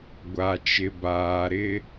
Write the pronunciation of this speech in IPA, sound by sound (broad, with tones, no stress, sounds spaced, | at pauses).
ɡʷ a˨ t͡ʃ ɪ˨ b aː˨ ɾ ɪ˦